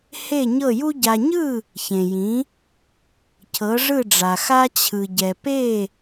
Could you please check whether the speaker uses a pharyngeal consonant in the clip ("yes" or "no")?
no